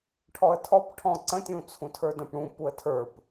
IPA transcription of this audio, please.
ʈʰ ɔ ə̯ tʰ ɔ p ʈʰ ɔ̃ ǀ ə̃ tʲ ũ t͡sʰ ũ tʰ ə˞ d ə̃ p ɽ ũ p u ə̯ tʰ ə˞ p

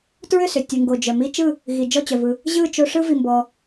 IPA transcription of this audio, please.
t ɹ ʏ˥˩ s ʏ˩ tʲ u˩ ŋ ɡ o˩ d͡ʒ œ˩ m i˦ t͡ʃ ɯ˥˩ | ɣ i˩ d͡ʒ ɔ˥˩ t͡ɕ œ˩ v ɯ˩ | ʑ ɯ˥˩ t͡ʃ o˦ ʂ ɯ˦ v i˩ m b ɔ˩

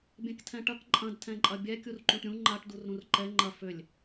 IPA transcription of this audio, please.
bʲ ɛ̃ k tʰ ɛ̃ ʈ ɐ k ǃʼ ɐ̃ d tʰ ɛ̃ ǃʼ ɐ bʲ ɛ kʲ u r ǃ ũ ʈ ɾʲ ũ ŋ͡ǃ a ʈ d u r ɾ ũ r ǃ ɛ ŋ͡ǃ ɐ f ʏ lʲ

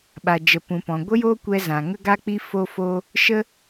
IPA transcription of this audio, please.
ɓ a˨ d͡ʒ ə˨ p ũ˨ p ɔ̃˨ ɡʷ ə˦ j oː˦ kʷ ɛ˧ z ã˨ ŋ ə˦ ɡ a˦ k͡p i˦ f o˦ f o˦ | ʃ ə˦

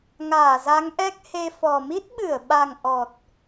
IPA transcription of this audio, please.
ŋ aː˧˩ z a˨˦ ŋ ʔ ɛ˦˥ k̚ h e˧ f ɔ˨˩ m i˦˥ t̚ ɓ ɨ˧˩ ə̯ ɓ a˨˩ ŋ ʔ ɔ˨˩ t̚

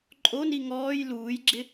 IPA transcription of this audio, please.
ǃʼ o n i ŋ ɔː j l uː j ɡ͡ǁ ɪ

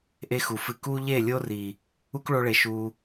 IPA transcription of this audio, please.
ʔ e˦ x u˨ f ɨ˧ k u˦ ʎ e˦˨ lʲ o˦ r i˨ | u˦ k ɭ o˧ ɭ e˨ ʃ u˧

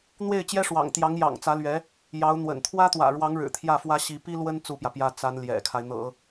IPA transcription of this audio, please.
n̪ w e˥˩ ɪ̯ t͡ɕ j ɛ˥ ʂ w ɑ̰˨˩ ŋ t̪ j ɑ˧˥ ŋ j ɑ̰˨˩ ŋ t͡s ä˧˥ l ɥ ɛ˧˥ | j ɑ˧˥ ʊ̯ n̪ w ə̰˨˩ n t̪ʰ w ä˥ t̪ w ä̰˨˩ ɻ w ɑ˧˥ ŋ ɻ ɻ̩˨˩ t̪ʰ j ä˥˩ f w ä˥ ɕ i˧˥ p i˥ l w ə˥ n t͡s u˥˩ p j ä˩ p j ä˥ t͡s a˧˥ n l j ɛ̰˨˩ kʰ a˦ ɪ̯ n̪ ɤ̰˨˩˦

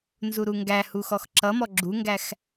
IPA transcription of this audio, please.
n z u ɾ u ŋ ɡ æ h u x ɔ x ǁ ʌ m ɔ ɡ͡ǁ u ŋ ɡ æ x

